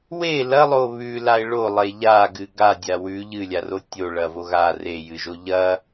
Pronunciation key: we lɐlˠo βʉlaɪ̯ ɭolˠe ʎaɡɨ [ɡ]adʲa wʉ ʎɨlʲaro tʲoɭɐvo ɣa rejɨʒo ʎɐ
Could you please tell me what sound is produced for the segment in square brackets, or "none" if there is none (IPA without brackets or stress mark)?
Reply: ɡ